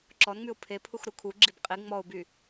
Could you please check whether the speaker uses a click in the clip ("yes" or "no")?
yes